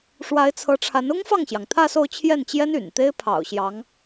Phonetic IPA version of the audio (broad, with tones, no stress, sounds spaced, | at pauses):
ʂ w a˧˥ ɪ̯ t͡sʰ ɤ˧˥ ʈ͡ʂʰ a˧˥ n ʊ˥ ŋ f ɑ˥˩ ŋ ɕ j ɑ˩ ŋ t̪ʰ ä˥˧ s o˥˧ ʊ̯ t͡ɕʰ j ɛ˥˩ n t͡ɕ j ɛ˥ n y̰˨˩ n t̪ e˥ ɪ̯ pʰ ɑ̰˨˩ ʊ̯ ɕ j ɑ˧˥ ŋ